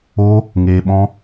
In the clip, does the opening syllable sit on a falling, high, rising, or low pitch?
high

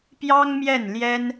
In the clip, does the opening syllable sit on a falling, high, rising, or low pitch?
high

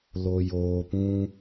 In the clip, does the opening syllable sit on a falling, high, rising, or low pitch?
low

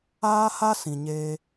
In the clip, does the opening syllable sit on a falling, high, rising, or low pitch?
high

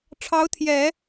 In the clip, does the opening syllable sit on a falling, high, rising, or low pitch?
rising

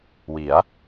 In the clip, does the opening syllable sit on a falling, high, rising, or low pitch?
rising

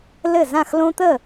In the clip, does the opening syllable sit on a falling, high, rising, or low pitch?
falling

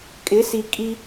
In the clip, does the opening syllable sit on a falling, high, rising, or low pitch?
rising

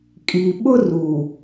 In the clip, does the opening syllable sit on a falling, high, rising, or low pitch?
low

